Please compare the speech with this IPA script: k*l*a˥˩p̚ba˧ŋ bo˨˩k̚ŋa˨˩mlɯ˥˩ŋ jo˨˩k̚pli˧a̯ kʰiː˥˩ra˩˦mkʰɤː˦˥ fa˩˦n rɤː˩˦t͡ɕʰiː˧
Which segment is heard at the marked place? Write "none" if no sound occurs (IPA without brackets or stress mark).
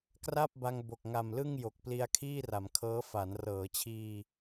r